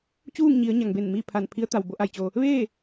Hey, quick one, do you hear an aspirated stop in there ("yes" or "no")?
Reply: yes